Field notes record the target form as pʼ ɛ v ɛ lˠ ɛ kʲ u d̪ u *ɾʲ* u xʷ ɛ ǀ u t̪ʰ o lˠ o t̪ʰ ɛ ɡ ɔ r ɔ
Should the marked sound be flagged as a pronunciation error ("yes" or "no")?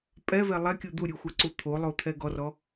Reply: no